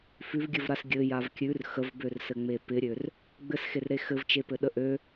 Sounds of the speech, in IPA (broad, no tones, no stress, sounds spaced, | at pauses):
f ʉ v ɡʲ ɘ v ɾ a s ɡʲ ɘ j a v kʲ ʉ r x ə v b ø r s ɘ ŋ͡m e p ɪ ɾʲ ø r | ɡ͡b ɘ s x e r ɾ e x ɘ v t͡ʃ e p ɘ ɗ ə ʔ ø